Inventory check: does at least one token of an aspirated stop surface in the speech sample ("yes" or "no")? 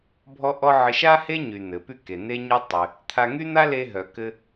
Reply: yes